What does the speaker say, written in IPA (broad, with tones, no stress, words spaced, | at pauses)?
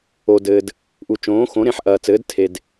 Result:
o˩dɘː˩d | ʔu˩t͡ʃõː˩˥ xõ˩˥ɾẽ˩˥ħʔɐː˩t͡sɘː˩˥d tʰe˩d